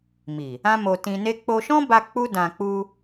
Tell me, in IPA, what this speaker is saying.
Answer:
mi˨ | ã˦mo˧ tĩ˧ne˦ k͡po˧ʃɔ̃˦ba˧ k͡pu˦dã˧ k͡pu˧

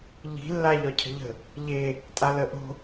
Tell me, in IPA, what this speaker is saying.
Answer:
ʎi̤ lːaʎɒcʰə̤ʎə̤ | ʎe | tʼaləʔo̤

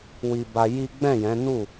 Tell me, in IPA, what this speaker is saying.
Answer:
wi˧ba˧ ji˦ ɡ͡bɛ̃˦˨jɛ̃˨˦nu˦˨

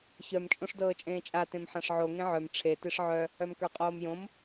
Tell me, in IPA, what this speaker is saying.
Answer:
çœm t͡ʃʼõʂdɤːt͡ʃʼẽːt͡ʃʼa tẽmħãʂʕo ŋẽʕœm ʈ͡ʂʰe teʂʕœ | œmkə˞qʼoːmjõm

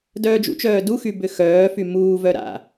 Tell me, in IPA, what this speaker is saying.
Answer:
dœːd͡ʒṵt͡ʃœː duxy bʏxœːfy muːvœ ɾa̰

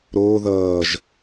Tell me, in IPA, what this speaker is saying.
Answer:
ɾoː ðʌːʒ

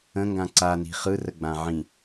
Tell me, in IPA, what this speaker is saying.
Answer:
ə̃ŋɡã ǀani̤ χɯrəɡ͡bã ʕĩ

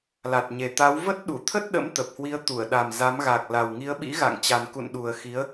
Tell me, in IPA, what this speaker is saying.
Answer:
la˨˩t̚ɲe˨˩t̪a˨˦w və˦˥t̚ɗu˧˩t̪ʰə˦˥t̚ɗə̰˧˥m t̪ə˨˩p̚hwi˨˦ə̯t̪u˧˩ə̯ ɗa˨˩m za˨˦m ɣa˨˩k̚ la˨˩wŋi˨˦ə̯ɓḭ˧˥ɣa̰˧˨ŋ t͡ɕa˨˩nkṵ˧˨nɗu˨˩ə̯ xi˨˦ə̯

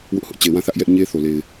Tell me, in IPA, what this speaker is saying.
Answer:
wʊ˦ʔhʊ˦ʔ t͡ɕe˨wã˦˨θä˦ʔ jɛ˦ʔ ɲe˦ θo˨le˨ɪ̯

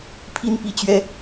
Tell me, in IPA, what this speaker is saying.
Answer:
pʰi˥npi˥˩t͡ɕɥɛ˥

